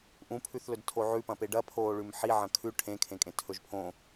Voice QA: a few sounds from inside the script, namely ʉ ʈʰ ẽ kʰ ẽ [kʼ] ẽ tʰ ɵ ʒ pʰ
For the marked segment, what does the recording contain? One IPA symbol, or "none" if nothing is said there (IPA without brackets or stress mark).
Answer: kʼ